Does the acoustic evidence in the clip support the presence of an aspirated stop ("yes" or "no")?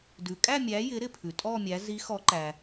yes